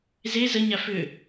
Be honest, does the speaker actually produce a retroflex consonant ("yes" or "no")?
no